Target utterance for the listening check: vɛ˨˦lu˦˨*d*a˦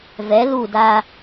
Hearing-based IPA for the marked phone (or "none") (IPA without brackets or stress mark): d